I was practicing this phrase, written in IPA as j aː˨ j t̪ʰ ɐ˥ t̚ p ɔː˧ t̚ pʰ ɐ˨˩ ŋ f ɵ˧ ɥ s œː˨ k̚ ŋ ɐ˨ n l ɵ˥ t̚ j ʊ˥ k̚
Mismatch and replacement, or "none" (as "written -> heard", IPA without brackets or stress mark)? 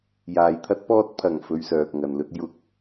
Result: none